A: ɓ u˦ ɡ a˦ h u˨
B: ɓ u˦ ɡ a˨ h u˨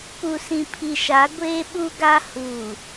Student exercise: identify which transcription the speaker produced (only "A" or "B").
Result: A